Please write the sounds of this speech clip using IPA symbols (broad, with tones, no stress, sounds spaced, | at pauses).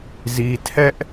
z i˨ tʰ ɛ˦ ʔ